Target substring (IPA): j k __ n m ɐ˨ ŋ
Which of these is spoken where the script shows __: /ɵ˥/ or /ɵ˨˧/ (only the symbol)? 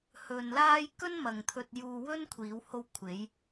ɵ˥